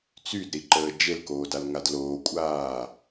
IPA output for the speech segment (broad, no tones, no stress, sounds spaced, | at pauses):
t͡s y d ɾ i ǃ əː d͡ʒ e l k oː d a l ŋ a d l oː kʷʼ aː